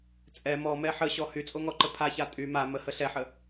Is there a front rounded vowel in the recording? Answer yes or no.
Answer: yes